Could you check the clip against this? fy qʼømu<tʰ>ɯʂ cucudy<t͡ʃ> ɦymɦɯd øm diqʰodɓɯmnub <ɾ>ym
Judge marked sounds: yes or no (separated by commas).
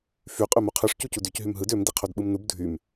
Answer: no, no, no